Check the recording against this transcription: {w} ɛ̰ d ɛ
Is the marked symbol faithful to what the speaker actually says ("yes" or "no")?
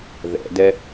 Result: no